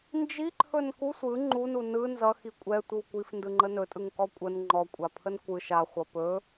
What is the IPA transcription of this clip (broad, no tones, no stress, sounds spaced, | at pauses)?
n d͡ʒ i ǃʰ ɵ n k u sʷ ɯ ŋ͡ǃ u n u n ɯ n z ʌ x i kʷʼ ɛ tʷ ɯ w kʷ i f n d ɯ ŋ͡ǃ ə n ɵ tʼ ɯ ŋ k ɔ kʷʼ ə n ŋ͡ǃ ɔ kʷʼ a pʰ ə n kʷ ɯ ʃ a χʷ ʌ p ɵ